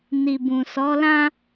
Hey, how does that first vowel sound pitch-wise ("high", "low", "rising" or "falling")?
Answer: low